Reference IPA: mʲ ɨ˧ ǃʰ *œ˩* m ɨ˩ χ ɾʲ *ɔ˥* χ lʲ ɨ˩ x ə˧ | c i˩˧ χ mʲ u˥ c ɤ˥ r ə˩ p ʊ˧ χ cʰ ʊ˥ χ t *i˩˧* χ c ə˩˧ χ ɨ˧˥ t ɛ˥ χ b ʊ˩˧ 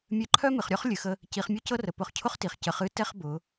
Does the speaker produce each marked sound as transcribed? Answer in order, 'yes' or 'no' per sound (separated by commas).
no, yes, yes